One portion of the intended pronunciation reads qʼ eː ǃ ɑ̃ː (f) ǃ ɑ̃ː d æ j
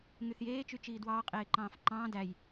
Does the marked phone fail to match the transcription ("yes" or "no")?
no